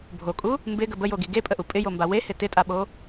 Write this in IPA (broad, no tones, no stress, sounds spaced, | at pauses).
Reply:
bʱ o kʼ u | m b ɪ ɡ ə b ə j o ɡ i ɡ e pʼ ə ʔ u pʼ ɪ j o m b a w e h ɪ t ɪ tʼ a ɓ o